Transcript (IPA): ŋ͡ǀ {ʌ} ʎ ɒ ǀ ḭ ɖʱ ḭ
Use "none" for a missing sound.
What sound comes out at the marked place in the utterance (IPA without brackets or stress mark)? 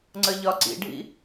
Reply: ə